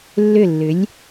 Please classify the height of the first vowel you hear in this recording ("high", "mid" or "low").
high